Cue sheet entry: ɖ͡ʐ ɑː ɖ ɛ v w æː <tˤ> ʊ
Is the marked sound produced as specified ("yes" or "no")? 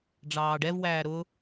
no